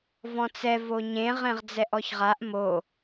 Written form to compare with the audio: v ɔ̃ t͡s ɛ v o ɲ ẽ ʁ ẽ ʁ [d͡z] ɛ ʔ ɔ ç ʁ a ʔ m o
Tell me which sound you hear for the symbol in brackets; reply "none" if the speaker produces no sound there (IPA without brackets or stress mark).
d͡z